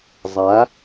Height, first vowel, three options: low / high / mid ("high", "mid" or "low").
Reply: low